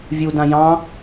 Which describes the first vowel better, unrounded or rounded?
rounded